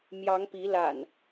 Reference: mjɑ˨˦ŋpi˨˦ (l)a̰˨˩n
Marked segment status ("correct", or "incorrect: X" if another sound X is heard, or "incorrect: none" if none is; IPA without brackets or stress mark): correct